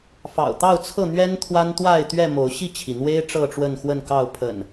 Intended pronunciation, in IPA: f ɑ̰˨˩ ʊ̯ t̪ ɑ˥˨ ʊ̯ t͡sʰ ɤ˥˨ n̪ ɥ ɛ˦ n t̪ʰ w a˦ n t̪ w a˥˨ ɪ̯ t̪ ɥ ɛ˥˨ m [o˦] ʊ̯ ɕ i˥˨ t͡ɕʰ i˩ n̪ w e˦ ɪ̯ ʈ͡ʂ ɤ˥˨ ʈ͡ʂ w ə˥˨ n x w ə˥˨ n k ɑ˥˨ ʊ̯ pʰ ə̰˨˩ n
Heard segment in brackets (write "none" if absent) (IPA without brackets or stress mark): o˨˦